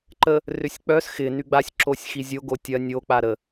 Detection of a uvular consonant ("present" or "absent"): absent